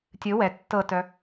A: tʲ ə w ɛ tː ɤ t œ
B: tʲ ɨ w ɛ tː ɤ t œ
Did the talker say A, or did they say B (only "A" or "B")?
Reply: B